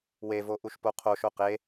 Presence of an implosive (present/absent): absent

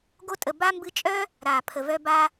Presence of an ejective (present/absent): present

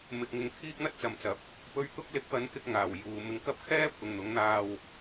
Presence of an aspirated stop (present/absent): present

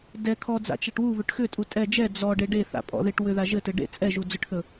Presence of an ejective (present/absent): present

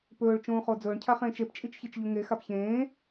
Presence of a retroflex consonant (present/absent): present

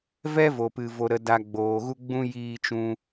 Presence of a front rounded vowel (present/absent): absent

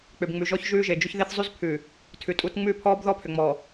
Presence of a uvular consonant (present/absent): absent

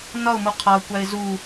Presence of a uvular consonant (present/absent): present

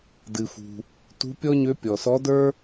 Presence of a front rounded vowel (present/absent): present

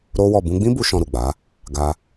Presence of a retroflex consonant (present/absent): absent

